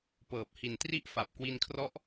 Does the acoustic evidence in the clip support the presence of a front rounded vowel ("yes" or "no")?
no